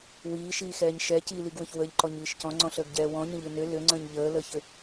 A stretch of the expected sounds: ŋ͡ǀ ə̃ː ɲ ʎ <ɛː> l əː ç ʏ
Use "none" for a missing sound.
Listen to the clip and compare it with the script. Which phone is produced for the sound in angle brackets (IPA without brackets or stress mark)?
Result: əː